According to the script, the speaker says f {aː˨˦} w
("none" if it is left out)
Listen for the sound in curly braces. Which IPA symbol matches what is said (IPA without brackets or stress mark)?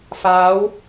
aː˨˦